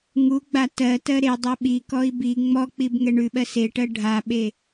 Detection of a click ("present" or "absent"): absent